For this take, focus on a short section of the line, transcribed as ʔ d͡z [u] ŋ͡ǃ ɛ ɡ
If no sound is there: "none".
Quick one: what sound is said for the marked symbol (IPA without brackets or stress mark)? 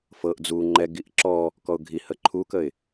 u